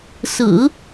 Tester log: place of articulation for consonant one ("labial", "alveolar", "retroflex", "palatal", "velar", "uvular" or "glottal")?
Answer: alveolar